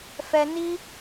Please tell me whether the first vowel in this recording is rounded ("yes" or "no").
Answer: no